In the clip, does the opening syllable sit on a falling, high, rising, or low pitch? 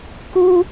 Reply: high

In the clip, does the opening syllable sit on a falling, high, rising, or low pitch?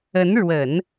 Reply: rising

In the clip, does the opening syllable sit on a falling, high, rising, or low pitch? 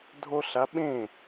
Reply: high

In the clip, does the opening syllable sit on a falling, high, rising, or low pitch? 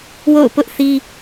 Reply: falling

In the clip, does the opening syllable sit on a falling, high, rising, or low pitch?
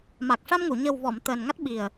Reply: low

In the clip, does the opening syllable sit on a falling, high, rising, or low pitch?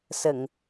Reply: low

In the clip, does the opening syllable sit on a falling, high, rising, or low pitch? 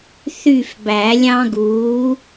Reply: falling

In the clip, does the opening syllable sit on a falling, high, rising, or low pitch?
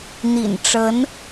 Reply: low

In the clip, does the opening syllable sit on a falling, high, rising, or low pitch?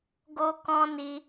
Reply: high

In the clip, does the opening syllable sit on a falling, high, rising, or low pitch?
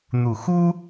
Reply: low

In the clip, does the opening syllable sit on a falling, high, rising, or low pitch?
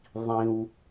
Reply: low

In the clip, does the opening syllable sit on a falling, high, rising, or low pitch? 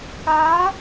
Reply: rising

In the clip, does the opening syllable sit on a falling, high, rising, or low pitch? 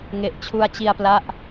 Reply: low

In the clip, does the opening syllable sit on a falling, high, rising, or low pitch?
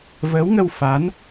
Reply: rising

